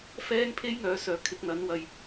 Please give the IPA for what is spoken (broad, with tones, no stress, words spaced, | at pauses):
fɛː˥ŋ pʰe˥jŋœː˨˧sœː˨ kʰɪ˨˥k̚n̪ɐ˨˥nwɐ˧j